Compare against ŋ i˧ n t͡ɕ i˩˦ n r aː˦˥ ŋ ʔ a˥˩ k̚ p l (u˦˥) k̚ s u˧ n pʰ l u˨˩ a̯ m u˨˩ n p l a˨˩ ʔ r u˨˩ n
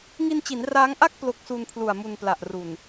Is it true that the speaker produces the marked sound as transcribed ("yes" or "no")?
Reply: no